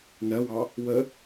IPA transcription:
nɜwɑ | wə

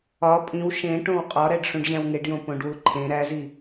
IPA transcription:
ɒ pʼĩw ʃẽʈõw qʼɒɾæɖ ʂũɖʑæ̃wŋeɖjõ põɖwuǃʰẽ ɾæzi

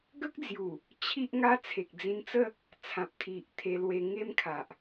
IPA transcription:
ɡə˦k̚d͡zju˨˩ | t͡ɕʰi˦ʔŋa˦ t͡sʰe˨k̚d͡zĩ˧nt͡sə˥˧ | t͡sʰã˨p̚t̪ʰi˨ʔt̪ʰe˧lwe˧ ŋe˦mkʰa˨ʔ

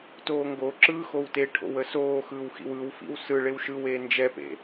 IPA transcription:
toːŋɡoǁɯː xowteʈʰo̰w əsoːxɯːw xḭwɯwfḭw sɯ ɭewʃɯweː nd͡ʒɛpḛ

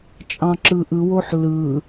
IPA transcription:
t͡ʃʼɑ̃ǁɯʔɯwoħ lɯ

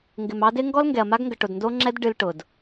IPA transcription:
ŋɡɪ˨mɑ˦dɪ˦ ŋɡɔ˦lŋɡɛ˨ɐ̯ma˦ɡŋɡə˨ ʈʊ˨dndo˦ŋ͡ǁɛ˦d ɖɨ˦lʈʊ˨d

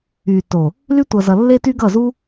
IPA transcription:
y˨to˨ | ly˦tʷʌ˨zʌ˨ lːe˦ty˦ɡʌ˦˨zu˦

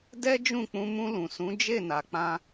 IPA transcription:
dɛ˦d͡ʒũ˦˨ k͡pũ˧mũ˧lũ˨ sũ˨˦d͡ʒe˦˨na˨k͡pã˧

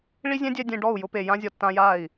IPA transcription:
ɭi˦zʲɛ̃˦dʲɛ˧ dʲẽ˧ɖɔ˦˨u̯ jʊ˧pe˨jã˧zʲɔ˨ tːã˧ja˦˨i̯

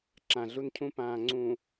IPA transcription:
ǁã˨ɮu˦ncʰũ˦ pãː˨ŋ͡ǀũ˨

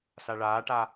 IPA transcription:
saɭaːʈa

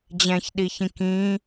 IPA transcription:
d͡ʑɛ̃çɗiçĩ kĩ

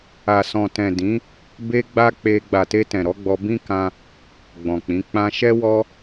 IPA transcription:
a˨sɔ̃˨tɛ̃˨ dĩ˨˦ | be˦ɡ͡ba˦ k͡pe˧ ɡ͡ba˨te˧ tɛ̃˨ɾɔ˨˦ɡ͡bɔ˧ bĩ˦kã˧ | ɡ͡bɔ̃˨k͡pĩ˨˦ k͡pã˧ʃɛ˦ wɔ˦

